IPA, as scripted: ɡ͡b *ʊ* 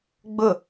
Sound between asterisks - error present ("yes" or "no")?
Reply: no